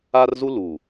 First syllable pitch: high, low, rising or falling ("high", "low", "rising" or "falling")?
high